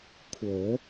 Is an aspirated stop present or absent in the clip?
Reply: present